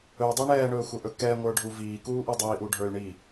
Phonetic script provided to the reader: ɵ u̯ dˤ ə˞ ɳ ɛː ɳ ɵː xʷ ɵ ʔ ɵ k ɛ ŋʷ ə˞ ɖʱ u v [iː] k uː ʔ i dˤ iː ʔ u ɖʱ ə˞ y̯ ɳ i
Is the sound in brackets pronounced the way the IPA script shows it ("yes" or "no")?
yes